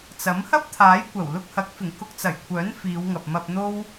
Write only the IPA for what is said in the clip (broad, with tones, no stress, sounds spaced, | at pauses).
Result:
t͡s ɐ˨˥ m h ɐ˥ p̚ t̪ʰ aː˨˥ j kʷ ɐ˨˩ w l ʊ˧ k̚ h ɐ˨˥ k̚ f ɪ˨˩ ŋ k ʊ˧ k̚ t͡s ɐ˨˩ j kʷʰ œː˨˥ n f iː˨˧ w ŋ ɐ˨ p̚ m ɐ˧ p̚ n̪ o˥ w